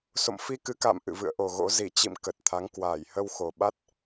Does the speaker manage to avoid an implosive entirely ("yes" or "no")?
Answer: no